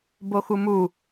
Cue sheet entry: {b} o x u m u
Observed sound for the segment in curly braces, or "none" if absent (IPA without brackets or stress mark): b